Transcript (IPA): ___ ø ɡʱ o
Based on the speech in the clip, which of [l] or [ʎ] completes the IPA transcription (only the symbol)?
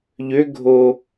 ʎ